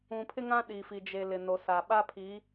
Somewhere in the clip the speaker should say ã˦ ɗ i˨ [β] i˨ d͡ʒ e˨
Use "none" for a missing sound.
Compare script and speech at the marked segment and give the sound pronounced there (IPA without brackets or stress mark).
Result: f